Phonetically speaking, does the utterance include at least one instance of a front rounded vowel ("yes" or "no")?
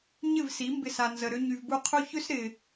yes